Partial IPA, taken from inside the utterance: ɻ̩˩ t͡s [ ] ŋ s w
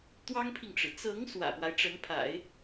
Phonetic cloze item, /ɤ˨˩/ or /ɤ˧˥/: ɤ˧˥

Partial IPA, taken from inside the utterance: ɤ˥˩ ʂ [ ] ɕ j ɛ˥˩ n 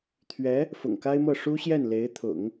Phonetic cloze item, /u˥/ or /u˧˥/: u˥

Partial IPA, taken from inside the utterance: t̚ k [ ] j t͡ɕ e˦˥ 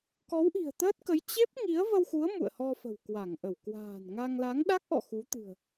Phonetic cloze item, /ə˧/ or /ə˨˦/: ə˨˦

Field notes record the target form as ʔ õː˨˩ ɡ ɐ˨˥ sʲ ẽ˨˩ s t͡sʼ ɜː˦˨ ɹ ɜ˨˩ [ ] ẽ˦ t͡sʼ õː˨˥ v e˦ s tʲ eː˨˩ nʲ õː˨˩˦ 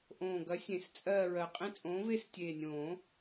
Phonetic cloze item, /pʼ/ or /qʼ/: qʼ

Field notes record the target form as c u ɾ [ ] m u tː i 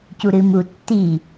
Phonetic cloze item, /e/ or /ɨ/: ɨ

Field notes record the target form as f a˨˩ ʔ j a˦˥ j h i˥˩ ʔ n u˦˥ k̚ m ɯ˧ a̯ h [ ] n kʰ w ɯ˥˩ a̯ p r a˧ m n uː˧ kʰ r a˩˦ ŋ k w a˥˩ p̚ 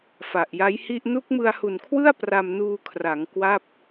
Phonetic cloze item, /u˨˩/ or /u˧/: u˨˩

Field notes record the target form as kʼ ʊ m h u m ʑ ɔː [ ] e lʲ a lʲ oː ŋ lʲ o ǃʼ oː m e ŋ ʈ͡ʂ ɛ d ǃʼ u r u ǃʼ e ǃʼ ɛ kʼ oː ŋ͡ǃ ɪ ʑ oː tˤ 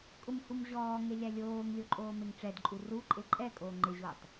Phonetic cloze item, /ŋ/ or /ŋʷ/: ŋ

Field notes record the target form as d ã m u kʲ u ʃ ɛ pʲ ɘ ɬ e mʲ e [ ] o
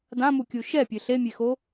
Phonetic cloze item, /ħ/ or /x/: x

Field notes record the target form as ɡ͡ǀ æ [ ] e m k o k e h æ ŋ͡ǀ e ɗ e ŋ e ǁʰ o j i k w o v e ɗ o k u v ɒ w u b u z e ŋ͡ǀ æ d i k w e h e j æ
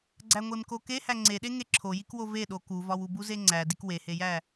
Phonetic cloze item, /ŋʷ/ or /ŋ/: ŋʷ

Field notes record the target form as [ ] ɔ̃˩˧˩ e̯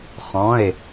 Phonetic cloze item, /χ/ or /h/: χ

